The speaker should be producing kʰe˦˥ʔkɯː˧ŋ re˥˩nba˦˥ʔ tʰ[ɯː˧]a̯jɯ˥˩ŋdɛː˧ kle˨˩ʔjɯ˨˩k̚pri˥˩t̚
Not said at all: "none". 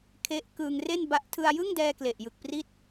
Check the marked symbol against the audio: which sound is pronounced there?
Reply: ɯ˧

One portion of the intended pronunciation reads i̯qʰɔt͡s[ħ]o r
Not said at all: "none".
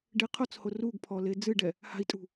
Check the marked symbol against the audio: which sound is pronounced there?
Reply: h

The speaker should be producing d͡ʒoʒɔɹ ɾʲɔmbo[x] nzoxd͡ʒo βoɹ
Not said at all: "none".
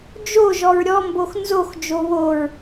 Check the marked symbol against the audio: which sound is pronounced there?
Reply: x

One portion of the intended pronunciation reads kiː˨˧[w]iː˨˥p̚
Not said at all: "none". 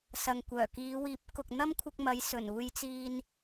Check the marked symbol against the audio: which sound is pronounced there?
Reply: w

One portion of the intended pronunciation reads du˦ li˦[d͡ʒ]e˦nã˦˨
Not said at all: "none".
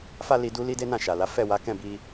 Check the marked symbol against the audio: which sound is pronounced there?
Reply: d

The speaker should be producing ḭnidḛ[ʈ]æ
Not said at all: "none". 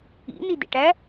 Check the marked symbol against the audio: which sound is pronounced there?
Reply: ʈ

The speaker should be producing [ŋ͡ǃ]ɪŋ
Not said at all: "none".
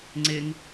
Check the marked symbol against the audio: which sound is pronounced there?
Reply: ŋ͡ǀ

